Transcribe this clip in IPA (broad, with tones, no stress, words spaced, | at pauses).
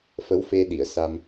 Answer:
fə˧˥wfe˧ɗi˨˩˨ə̯ sa˧m